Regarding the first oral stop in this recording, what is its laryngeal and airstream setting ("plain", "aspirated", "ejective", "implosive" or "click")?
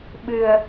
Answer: implosive